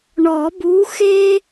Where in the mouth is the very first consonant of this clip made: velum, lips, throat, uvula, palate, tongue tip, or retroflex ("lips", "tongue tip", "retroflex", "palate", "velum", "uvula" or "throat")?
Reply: retroflex